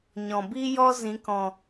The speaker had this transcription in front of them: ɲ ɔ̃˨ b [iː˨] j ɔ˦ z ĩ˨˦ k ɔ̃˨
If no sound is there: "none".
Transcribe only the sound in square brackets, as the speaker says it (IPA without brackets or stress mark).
iː˦